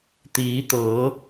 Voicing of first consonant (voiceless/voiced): voiceless